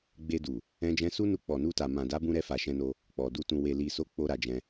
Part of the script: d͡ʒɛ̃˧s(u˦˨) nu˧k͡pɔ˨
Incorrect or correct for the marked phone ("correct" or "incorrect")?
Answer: incorrect